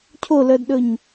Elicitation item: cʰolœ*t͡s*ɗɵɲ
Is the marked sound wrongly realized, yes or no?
yes